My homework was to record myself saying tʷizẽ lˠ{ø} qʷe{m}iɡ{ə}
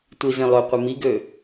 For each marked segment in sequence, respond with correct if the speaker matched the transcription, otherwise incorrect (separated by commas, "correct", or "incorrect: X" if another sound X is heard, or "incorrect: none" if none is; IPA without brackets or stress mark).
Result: correct, correct, incorrect: ø